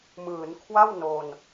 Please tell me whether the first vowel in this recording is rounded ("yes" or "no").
no